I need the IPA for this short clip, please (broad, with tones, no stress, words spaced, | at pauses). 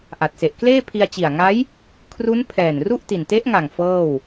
ʔa˨˩t̚se˨˩ʔ kleː˥˩ pʰi˧a̯t͡ɕi˨˩a̯ŋa˦˥j | kʰru˦˥n pʰɛː˨˩nru˥˩ʔ ti˨˩nte˦˥ʔŋa˨˩ŋ fɤː˥˩w